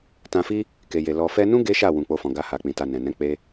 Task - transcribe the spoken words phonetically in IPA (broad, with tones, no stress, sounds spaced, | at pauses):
t ã˧ f i˦ | k e˨ j e˨ l ɔ˨ f ɛ˧ n ũ˦ ɡ e˦ ʃ a˦˨ w ũ˧ k͡p o˦ f ɔ̃˧ ɡ a˦ h a˧ k͡p ĩ˧ t a˧ n ɛ̃˨ n ɛ̃˨˦ k͡p e˦